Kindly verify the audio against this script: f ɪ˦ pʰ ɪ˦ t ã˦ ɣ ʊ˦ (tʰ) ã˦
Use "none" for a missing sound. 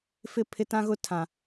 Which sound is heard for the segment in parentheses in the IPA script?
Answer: tʰ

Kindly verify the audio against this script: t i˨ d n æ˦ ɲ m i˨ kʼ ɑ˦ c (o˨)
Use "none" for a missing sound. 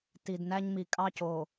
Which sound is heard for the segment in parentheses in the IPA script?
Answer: o˨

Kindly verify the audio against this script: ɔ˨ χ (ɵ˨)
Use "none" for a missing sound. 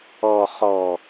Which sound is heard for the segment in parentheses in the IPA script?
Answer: ɔ˨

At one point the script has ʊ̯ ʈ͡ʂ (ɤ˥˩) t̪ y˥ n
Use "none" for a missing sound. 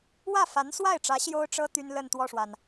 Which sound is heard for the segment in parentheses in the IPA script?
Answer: ɤ˥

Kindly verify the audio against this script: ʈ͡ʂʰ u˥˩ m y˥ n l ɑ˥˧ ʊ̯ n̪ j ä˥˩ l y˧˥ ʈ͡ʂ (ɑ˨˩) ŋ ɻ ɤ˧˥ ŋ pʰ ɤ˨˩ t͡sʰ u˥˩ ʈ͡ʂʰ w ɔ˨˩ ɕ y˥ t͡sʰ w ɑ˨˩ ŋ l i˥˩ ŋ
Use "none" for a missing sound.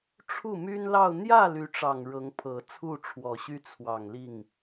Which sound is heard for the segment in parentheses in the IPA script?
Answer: ɑ˨˩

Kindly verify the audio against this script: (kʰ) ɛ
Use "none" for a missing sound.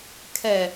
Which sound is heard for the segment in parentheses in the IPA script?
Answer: kʰ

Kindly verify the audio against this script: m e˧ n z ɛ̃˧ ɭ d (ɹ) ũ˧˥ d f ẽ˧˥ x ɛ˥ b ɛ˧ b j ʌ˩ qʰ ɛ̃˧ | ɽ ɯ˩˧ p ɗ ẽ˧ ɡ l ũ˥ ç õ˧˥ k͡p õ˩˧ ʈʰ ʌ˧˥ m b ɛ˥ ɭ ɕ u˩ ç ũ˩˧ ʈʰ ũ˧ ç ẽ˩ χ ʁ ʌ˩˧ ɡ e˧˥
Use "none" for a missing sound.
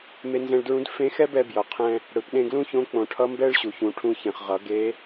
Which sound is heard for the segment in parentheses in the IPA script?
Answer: ɹ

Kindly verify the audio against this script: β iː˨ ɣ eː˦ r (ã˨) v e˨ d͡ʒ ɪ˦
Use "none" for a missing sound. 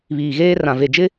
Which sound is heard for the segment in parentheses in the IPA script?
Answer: ã˨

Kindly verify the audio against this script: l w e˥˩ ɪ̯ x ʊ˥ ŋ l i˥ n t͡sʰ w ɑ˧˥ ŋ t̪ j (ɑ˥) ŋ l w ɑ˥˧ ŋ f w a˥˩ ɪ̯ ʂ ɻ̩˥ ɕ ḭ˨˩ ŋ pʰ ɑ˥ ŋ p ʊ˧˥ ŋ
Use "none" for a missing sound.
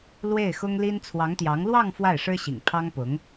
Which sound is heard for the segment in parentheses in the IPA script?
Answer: ɑ˧˥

